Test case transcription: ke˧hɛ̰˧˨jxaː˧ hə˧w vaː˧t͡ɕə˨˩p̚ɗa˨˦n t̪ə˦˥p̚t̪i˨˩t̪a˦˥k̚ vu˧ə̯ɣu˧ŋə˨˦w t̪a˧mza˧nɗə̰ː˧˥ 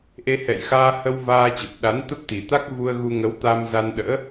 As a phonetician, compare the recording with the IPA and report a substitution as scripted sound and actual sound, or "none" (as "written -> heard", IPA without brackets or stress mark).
k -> ʔ